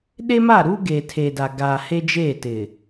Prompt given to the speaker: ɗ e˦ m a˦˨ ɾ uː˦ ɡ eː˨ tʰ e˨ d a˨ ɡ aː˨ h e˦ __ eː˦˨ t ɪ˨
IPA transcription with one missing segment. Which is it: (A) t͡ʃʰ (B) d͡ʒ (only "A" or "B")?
B